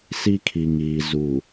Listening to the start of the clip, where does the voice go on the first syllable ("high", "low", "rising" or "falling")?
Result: high